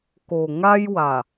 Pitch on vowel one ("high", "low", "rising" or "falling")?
low